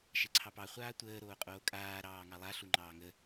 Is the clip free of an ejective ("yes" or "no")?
no